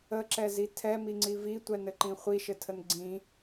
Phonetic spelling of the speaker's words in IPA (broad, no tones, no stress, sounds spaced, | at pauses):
ə ǁ ɛ z i tʰ ɛ m i ŋ͡ǀ i v i tʷ ɛ n ɘ ǃ ĩ χʷ i ʃ ɘ tʰ ə n ɡ͡ǀ ĩ